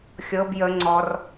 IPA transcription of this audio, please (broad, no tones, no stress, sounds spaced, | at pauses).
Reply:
xʲ ɤ b j ə ŋ͡ǀ ɔ r